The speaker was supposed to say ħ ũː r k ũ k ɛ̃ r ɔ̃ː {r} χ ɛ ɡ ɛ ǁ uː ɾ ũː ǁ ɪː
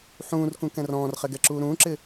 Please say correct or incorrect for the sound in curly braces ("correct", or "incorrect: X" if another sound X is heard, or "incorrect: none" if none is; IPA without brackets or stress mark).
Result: correct